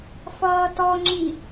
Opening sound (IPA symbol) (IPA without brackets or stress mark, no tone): f